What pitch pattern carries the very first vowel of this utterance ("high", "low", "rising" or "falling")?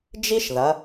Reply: high